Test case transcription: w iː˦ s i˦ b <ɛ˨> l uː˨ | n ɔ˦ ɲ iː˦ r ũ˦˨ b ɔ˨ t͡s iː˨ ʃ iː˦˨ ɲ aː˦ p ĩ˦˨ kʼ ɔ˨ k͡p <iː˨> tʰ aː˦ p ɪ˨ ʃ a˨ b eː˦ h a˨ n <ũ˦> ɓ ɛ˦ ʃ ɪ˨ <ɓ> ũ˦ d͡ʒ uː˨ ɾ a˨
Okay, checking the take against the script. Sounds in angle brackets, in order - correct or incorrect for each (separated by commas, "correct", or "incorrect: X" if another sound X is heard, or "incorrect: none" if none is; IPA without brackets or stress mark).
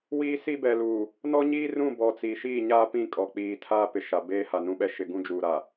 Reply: correct, correct, correct, incorrect: ɡ